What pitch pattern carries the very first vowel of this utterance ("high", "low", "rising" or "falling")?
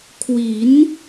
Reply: rising